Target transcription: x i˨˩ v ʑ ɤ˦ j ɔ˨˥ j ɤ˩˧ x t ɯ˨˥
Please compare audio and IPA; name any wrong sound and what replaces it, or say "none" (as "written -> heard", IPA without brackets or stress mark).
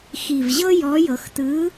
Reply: none